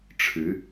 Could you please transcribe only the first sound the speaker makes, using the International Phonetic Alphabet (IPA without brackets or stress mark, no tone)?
ʈ͡ʂʰ